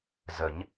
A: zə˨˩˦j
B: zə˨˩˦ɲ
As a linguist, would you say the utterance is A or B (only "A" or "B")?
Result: B